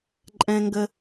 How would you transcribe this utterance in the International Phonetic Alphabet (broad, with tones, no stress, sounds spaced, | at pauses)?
ǃʼ ɛ̃˥ ŋ ɡ ə˥